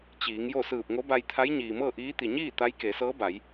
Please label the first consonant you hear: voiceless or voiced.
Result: voiceless